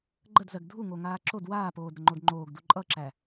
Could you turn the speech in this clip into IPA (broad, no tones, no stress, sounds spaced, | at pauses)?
ɡ͡ǃ ə d z ɜ ɡ dʱ u ŋ o ŋ aː ǁ o d w aː p oː d ɾ ə ŋ͡ǃ o d ŋ͡ǃ oː ɡ d u ǃʼ ʌ ǁ æ